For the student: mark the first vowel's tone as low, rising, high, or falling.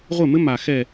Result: falling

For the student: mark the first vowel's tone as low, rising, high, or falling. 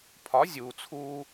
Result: rising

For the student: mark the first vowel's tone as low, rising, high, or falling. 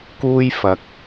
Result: high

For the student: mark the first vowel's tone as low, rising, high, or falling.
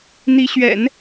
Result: rising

